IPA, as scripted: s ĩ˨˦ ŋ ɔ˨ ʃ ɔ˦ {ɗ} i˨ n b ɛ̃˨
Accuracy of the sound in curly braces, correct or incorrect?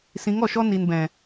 incorrect: n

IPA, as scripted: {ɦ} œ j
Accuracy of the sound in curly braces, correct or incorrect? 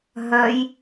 correct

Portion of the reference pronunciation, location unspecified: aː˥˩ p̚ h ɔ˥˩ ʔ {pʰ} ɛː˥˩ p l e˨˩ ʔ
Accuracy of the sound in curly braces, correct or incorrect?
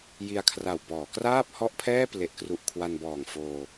correct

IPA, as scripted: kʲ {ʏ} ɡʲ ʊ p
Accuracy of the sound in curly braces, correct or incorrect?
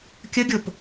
incorrect: ə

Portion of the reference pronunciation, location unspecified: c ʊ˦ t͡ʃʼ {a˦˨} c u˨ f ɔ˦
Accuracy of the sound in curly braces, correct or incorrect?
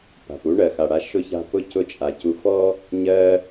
incorrect: a˨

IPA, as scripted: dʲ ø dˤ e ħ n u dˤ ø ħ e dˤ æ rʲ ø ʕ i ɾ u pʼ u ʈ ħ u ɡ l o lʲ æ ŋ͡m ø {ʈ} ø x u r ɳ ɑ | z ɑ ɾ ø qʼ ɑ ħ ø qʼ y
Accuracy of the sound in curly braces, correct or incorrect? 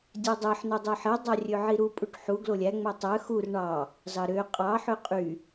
incorrect: tˤ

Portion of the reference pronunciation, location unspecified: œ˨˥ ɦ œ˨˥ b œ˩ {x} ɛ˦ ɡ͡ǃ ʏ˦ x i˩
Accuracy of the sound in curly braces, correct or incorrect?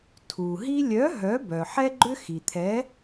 incorrect: ħ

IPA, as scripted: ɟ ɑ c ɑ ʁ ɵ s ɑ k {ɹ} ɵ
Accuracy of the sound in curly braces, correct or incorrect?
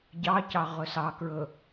correct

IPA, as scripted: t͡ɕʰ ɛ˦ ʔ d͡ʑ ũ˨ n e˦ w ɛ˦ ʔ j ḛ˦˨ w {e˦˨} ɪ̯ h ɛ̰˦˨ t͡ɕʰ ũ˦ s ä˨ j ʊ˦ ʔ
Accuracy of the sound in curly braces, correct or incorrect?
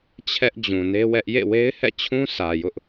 incorrect: e˦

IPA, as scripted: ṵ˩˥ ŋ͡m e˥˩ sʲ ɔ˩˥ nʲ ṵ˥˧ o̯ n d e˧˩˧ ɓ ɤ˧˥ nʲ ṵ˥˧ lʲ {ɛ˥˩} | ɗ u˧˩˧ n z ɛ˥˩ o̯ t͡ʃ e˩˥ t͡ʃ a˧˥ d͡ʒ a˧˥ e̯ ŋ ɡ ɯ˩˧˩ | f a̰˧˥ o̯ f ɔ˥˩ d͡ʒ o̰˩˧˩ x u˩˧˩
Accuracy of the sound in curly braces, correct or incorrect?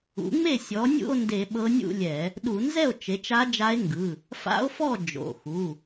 incorrect: ɛ˧˩˧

